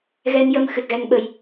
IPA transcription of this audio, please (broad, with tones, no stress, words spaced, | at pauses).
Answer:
ɣɛ˧njə˧m xɨ˨˩t̚ɣɛ˧ŋ ɓə˧j